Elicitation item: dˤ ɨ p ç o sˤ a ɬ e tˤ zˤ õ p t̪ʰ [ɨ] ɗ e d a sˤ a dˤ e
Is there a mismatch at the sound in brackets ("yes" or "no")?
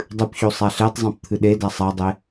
no